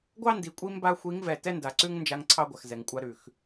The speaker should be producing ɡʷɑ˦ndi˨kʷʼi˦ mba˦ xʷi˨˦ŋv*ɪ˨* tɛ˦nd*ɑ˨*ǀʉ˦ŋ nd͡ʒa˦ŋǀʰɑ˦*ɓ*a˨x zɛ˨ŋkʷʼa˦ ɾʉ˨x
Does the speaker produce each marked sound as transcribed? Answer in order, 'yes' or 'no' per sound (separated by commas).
no, no, no